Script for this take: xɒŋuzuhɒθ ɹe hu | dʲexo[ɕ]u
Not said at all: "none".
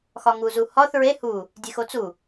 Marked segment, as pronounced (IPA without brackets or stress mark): t͡s